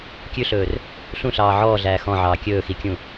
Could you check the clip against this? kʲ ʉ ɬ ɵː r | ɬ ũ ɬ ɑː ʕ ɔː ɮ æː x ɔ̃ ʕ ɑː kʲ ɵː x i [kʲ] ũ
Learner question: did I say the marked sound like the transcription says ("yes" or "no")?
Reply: yes